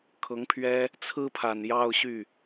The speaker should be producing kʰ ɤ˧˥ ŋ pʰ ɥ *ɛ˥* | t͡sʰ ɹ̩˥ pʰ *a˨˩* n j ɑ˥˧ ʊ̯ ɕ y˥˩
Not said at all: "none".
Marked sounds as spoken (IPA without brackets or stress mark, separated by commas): ɛ˥, a˨˩